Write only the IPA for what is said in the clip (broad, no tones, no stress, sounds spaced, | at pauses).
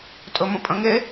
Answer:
tʼ ɵ m ə̃ pʼ ə̃ ŋ e